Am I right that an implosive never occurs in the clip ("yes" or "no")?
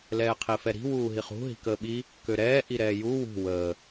no